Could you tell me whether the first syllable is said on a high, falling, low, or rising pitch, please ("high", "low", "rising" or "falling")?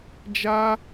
high